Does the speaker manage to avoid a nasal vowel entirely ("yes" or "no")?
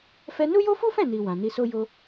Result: no